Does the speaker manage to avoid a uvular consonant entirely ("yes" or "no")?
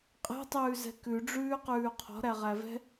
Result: no